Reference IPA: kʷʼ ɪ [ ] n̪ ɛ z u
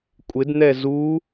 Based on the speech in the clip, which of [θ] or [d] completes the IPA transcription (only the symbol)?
d